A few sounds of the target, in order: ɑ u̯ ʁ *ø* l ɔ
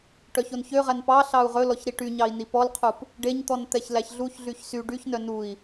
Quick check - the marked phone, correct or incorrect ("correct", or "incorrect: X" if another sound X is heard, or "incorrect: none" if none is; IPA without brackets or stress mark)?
incorrect: ɵ